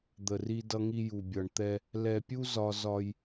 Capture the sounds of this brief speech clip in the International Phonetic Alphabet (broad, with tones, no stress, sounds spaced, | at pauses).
d̪ ə˨ r i˦ d ʌ˦ ŋ i˦ j u˨ bʲ ʌ˨ ɳ t̪ ɛ˦ | l ɛ˨ pʲ u˦ z ɒ˦ z ɒ˦ j